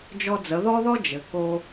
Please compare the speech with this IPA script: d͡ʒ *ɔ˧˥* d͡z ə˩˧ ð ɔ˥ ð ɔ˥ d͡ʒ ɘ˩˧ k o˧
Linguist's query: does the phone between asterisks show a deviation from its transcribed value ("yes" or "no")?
yes